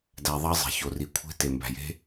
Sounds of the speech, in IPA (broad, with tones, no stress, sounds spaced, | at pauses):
d æ˨ ðˤ ɑ˦ zˤ e̤˨ ç o˨ r i˨ kʷʰ e̤˦ t e˨ m b æ̤˨ j e̤˦